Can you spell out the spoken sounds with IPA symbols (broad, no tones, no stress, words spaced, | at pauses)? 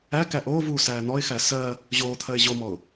æ kæʔoːvuː sæːn̪ɔɪ̯xæ sɜ | ʑoːt̪ʰɜɪ̯ ʑomɔʊ̯